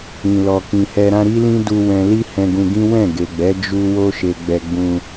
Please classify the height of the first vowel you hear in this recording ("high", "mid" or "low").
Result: high